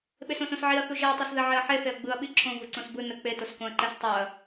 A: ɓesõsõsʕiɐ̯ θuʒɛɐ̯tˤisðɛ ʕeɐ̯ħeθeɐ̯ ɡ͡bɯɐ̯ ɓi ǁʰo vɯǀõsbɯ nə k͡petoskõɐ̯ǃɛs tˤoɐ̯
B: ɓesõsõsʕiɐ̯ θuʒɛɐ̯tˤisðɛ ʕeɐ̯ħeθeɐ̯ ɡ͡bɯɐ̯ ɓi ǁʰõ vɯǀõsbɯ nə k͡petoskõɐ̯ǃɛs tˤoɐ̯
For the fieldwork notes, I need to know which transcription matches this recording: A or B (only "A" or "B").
B